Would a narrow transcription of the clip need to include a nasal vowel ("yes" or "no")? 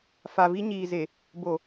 no